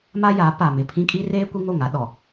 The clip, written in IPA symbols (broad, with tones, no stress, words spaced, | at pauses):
ma˦jaː˨˦ pa˨mɪ˨pʰĩ˦ kʼi˦reː˦ kʷi˦ŋo˦˨ŋa˨˦ ɗɔ˨